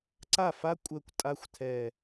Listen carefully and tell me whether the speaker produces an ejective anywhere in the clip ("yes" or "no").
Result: yes